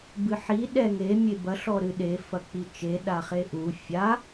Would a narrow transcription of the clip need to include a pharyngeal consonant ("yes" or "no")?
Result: yes